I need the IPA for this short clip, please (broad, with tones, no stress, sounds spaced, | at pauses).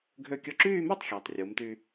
ɡʱ ø˥˧ kʲ ɔ˥˧ ǁ yː˥˧ m y˥˧ tˤ xʲ ɑ˩˧ tˤ rʲ u˩˧ m t y˧